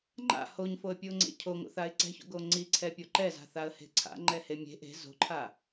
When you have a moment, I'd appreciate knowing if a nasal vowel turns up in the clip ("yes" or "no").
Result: no